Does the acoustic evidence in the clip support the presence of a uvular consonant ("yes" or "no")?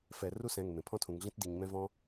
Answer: no